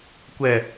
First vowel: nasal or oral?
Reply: oral